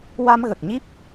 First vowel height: low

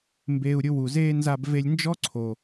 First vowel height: mid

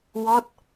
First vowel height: mid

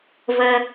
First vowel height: mid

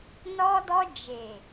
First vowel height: mid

